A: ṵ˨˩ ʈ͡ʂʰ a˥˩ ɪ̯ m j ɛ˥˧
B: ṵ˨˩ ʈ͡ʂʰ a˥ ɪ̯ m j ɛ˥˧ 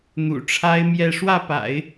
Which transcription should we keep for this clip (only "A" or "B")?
B